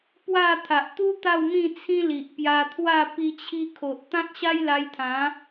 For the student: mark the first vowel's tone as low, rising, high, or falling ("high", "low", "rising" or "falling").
falling